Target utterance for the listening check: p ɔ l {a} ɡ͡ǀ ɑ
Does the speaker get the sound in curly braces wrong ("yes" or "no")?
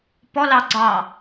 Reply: yes